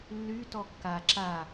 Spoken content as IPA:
lː y t ɔ kː a ǁ a

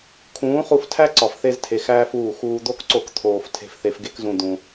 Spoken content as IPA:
kʰ ũː˨˦ χ u˧ f tʰ æ˦ ǀ ɒ˨ f θ e˧ z tʰ e˨ x æː˦ f uː˦˨ x uː˧ d̪ o˦ k ǀ o˦˨ k t̪ʰ oː˨ f tʰ e̤˧ f θ e˧ f ɡ e˦ k z ũ˧ d̪ ũ˧

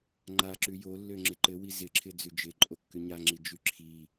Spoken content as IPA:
ŋ͡ǃ a ǁ ʉ j o lː ø ŋ͡ǁ ɪ ǃ ɘ w i z ɪ ǁʰ ɪ d͡z ʉ d͡ʒ ɪ ǃʼ o kː ʉ ɲ a ŋ͡ǁ i d͡ʒ ʉ ǁʰ i

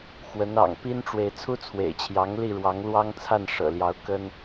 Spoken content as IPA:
x w ə˨˦ n ɑ̰˨˩ ŋ p i˦ n ʈ͡ʂ w e˨ ɪ̯ t͡sʰ u˦ t͡sʰ w ḛ˨˩ ɪ̯ t͡ɕʰ j ɑ˨˦ ŋ l i˥˨ ɻ w ɑ˨˦ ŋ l w ɑ˦ ŋ t͡sʰ a˥˨ n ʂ ɤ̰˨˩ l j ɑ˨˦ ʊ̯ k ə˦ n

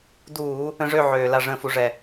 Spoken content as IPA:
d uː˧˩˧ | ə̃˧˩˧ ʐ ø˧˩ ʕ øː˩ l a˧˩ ʐ ə̃ː˧˩ f u˧˩˧ ʐ ɛ˩

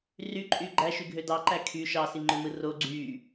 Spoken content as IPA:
r y ǃʼ y ɡ͡ǃ æ ʃ y ɡʱ ø d ɑ ǃ æ kʰ y ʃ ɑ s i ŋ͡ǃ ø m ɯ r o ɡ͡ǀ y

